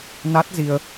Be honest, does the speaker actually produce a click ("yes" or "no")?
no